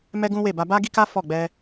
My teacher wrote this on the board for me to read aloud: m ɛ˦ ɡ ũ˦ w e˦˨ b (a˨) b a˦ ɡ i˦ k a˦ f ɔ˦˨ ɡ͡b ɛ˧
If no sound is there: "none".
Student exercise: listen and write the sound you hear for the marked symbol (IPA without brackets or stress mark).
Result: a˧